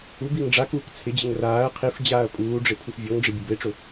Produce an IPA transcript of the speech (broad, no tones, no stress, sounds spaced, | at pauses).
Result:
u b i ŋ ɖ͡ʐ a k uː k t͡sʰ ɪ d͡ʑ ɪ ŋ r aː ɐ̯ qʰ i f d͡ʑ aː ɐ̯ pʼ uː ɖ͡ʐ ɪ pʰ u f vʲ ɔ ŋ ɖ͡ʐ ɪ bʲ ʊ b e ʈ͡ʂ ʊ